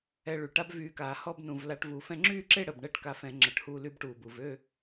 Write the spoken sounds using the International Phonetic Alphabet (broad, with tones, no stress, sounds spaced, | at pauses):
ɛ˧ ɭ y˨˩ ʈ a˥ b v yː˧ k aː˧˩˧ h ɔ˥˨ b n ũ˨˩ v l a˧ ʈ v u˨˩ f ɛ̃˧ ŋ͡ǁ yː˥˨ ǁ e˥˨ ɽ ə˨˩ b ɳ ɛ˥˨ ʈ k a˧ f ɛ̃˧˩˧ ŋ͡ǁ ə˨˩ ʈ h uː˧ l y˧ b ʈ uː˨˩ b u˨˩ v ø˥˨